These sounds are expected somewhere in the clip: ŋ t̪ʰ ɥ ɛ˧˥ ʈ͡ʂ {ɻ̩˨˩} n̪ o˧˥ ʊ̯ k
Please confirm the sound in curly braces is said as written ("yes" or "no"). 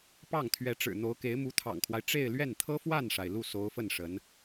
yes